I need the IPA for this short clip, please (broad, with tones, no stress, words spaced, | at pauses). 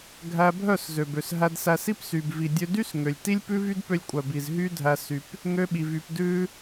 ɡʱæ˧bʱœ˦˨s zø˨bø˨sɦæ˧dsæ˧s i˦psy˨b vi˨dʲø˧dy˦sŋø˨lʲ ti˦lʲpʉ˦vy˦d pø˧lʲkʷʼœ˨bi˨z ɦy˦dʱæ˧ sy˧p | ŋø˧ɓi˨vy˨p dʉ˧